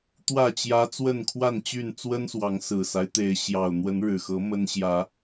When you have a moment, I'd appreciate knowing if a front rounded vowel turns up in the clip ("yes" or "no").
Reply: yes